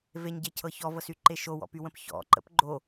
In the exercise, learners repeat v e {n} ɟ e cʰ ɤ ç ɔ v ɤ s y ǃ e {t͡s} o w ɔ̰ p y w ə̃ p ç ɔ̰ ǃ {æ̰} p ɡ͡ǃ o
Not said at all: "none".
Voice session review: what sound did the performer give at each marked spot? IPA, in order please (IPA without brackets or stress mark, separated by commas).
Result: ɲ, ʃ, ə̰